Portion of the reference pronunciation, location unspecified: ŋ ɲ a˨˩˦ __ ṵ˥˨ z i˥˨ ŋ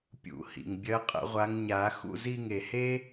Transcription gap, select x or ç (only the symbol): x